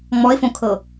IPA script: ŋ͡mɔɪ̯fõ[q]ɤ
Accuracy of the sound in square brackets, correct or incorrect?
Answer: incorrect: kʰ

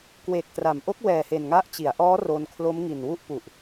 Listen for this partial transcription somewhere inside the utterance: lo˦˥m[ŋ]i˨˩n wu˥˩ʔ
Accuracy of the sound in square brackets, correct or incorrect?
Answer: correct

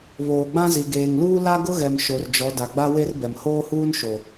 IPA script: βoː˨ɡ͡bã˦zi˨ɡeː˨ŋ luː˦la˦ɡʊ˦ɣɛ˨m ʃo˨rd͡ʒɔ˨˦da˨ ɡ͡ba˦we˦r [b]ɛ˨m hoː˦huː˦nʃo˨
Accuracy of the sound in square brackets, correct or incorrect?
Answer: correct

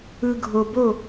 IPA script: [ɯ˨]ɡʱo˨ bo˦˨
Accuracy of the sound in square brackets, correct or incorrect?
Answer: correct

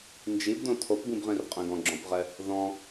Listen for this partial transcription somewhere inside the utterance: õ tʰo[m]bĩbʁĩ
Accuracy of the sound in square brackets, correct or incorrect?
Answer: incorrect: p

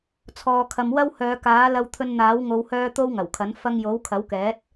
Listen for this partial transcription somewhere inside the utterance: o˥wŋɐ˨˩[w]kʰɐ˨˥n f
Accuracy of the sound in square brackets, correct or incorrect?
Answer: correct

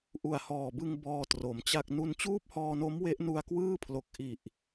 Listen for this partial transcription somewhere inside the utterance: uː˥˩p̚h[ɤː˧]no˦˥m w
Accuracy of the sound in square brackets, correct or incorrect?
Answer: incorrect: ɔː˧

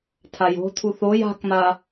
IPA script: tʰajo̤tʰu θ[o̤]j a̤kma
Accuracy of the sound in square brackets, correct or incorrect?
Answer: incorrect: o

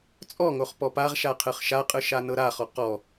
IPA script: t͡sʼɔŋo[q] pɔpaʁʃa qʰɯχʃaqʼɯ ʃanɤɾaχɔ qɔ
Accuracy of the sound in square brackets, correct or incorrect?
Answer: incorrect: χ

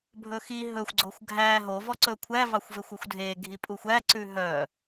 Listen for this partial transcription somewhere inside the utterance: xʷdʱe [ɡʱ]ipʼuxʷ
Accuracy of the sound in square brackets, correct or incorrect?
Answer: correct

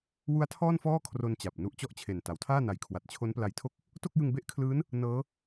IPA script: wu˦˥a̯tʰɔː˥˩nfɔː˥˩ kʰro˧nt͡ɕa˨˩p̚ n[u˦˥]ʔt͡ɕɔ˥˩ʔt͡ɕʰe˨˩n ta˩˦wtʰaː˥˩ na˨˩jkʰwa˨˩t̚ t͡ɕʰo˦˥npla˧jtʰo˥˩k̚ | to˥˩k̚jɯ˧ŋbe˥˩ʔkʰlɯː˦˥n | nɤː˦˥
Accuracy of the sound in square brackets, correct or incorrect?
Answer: correct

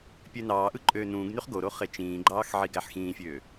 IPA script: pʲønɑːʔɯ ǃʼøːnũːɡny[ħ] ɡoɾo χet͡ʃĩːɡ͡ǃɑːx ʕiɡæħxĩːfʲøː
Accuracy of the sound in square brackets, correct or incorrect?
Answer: incorrect: χ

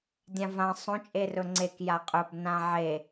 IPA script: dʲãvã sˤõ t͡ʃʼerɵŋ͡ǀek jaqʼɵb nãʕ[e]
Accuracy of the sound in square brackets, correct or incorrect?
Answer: correct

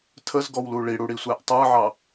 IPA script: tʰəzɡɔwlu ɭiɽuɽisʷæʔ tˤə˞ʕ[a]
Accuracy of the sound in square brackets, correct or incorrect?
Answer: incorrect: ɑ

